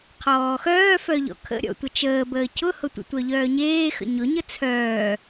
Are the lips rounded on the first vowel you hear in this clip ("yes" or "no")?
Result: yes